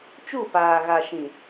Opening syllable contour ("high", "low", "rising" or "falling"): falling